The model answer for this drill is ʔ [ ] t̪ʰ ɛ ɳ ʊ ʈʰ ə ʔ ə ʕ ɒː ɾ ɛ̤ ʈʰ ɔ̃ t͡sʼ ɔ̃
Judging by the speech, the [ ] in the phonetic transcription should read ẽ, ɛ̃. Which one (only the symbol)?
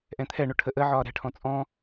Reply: ɛ̃